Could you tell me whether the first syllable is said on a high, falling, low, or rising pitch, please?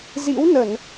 rising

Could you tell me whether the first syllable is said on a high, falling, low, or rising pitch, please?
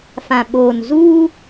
low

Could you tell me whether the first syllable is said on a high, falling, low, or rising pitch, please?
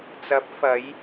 rising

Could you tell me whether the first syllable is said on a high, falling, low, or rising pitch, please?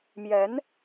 rising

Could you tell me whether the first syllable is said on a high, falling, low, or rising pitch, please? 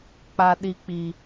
low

